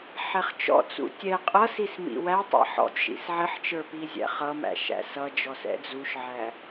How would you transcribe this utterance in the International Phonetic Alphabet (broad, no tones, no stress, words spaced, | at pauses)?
ħɛχt͡ʃɔ̰t͡sṵ tʲɛ qʼʌsis mḭwætˤæ̰ħ ɔ̰tʲʃḭs ʕɪħt͡ʃə˞ pizʲæ̰χʌmæ̰ ʃæ̰sʌd͡ʒɔ sɛ̰d͡zuʃʕæ